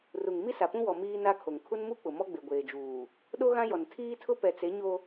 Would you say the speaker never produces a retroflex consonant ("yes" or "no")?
yes